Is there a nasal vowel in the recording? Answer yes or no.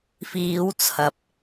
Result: no